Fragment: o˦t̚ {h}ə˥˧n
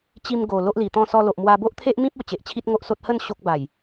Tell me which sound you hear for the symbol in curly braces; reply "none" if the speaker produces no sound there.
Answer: h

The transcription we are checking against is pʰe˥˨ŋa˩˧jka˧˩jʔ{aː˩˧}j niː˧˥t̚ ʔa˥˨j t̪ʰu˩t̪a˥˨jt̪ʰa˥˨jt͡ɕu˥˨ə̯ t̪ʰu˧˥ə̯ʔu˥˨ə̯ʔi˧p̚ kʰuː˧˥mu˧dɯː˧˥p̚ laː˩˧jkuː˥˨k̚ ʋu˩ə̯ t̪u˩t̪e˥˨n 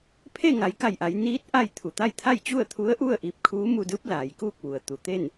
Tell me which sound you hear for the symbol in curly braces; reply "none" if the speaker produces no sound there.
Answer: a˩˧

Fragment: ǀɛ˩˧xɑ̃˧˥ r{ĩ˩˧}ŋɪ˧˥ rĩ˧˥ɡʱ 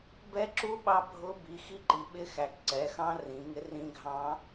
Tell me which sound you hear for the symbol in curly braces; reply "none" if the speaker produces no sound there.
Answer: ĩ˩˧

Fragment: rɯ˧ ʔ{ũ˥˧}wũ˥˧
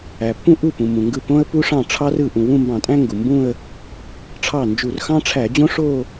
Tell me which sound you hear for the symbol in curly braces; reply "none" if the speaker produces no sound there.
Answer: ũ˩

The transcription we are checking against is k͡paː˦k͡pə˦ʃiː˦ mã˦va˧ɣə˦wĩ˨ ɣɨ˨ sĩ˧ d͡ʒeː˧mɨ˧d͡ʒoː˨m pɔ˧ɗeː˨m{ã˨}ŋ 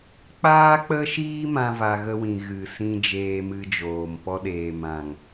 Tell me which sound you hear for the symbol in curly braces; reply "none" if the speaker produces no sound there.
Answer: ã˨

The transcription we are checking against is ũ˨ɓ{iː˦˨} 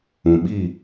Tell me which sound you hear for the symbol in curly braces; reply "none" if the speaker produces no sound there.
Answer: iː˦˨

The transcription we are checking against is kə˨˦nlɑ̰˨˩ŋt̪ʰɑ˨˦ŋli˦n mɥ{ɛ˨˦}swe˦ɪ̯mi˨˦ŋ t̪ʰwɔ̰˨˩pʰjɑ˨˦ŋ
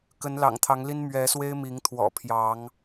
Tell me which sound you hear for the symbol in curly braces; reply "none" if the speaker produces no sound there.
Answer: ɛ˨˦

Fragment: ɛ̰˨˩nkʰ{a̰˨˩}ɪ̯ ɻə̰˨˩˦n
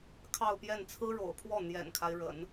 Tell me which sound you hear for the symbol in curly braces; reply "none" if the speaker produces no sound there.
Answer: a˦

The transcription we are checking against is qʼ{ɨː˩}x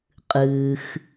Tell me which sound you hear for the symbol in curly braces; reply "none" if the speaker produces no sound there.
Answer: ɨː˩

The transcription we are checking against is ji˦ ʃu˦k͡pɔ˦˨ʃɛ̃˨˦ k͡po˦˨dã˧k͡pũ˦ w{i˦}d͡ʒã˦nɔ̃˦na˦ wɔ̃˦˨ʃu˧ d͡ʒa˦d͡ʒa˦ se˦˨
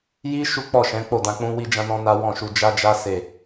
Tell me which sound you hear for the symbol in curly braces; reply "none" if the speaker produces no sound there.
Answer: i˦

